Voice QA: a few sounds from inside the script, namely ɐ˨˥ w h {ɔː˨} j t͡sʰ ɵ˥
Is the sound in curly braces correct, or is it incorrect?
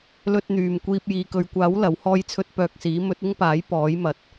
incorrect